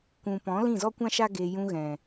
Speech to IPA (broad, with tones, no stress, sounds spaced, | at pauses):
kʷ ũ˨ p ɔ̃˨˦ l ĩ˦˨ z ɔ˦ kʷ ã˦ ʃ a˦ ɡ e˧ j ũ˧ ɣ ɛ̃˨